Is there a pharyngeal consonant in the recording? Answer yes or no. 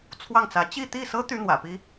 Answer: no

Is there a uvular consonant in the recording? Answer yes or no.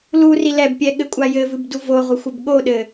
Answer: yes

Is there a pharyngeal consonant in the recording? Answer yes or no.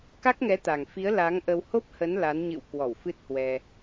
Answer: no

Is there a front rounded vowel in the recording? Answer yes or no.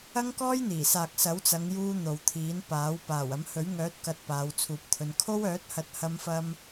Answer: yes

